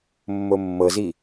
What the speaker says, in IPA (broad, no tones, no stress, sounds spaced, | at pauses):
mː o mː ɤ z i